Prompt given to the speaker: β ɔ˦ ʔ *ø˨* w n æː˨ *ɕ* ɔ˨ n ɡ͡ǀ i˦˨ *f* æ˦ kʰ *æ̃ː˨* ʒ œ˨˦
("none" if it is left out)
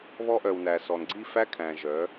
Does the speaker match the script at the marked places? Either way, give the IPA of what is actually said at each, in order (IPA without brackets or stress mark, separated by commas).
œ˨, s, f, æ̃ː˨